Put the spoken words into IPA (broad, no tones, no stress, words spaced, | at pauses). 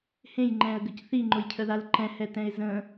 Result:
hẽjŋ͡ǃɛ̃ə̯ɡəc θiŋ͡ǃʊjcʰəðal ǃɛ̃hɛtɛ̃ɪ̯ zə̃